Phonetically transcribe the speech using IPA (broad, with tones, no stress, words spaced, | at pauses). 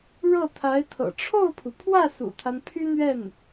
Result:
ɻɤ˥˩t̪ʰa˧˥ɪ̯t̪ʰɤ̰˨˩ ʈ͡ʂʰo˥˩ʊ̯pʰu˩pʰwä˥˩ sṵ˨˩t̪ʰa˦n pʰy˥n̪ɥɛ˥˩n